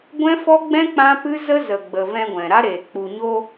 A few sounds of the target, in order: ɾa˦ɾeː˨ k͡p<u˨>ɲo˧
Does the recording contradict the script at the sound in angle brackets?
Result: no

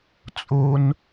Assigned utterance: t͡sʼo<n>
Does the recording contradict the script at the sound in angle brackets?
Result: no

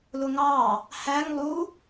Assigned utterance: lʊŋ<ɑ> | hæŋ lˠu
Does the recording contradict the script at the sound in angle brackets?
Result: no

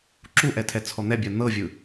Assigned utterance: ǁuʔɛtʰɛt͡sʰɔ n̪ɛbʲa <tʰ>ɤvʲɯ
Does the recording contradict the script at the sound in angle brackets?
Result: yes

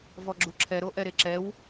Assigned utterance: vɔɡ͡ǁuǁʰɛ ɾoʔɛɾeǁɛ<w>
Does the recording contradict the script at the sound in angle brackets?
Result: no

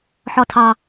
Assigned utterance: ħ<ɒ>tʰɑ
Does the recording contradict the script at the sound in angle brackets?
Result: no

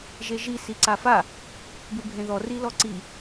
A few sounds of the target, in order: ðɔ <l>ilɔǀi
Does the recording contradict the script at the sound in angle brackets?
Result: yes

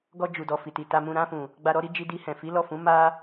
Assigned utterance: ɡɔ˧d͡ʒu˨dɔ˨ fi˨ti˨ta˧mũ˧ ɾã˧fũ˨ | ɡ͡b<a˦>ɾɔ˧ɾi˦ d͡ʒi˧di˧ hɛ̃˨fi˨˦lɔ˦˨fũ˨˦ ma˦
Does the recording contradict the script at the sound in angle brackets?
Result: yes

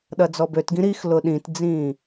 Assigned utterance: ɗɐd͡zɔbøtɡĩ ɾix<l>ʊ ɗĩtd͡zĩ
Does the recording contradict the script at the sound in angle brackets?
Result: no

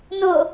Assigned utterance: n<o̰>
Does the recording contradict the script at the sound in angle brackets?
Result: yes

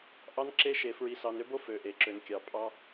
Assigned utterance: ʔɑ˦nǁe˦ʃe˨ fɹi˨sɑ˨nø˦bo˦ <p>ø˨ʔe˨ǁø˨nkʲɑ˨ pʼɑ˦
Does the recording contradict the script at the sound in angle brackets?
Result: yes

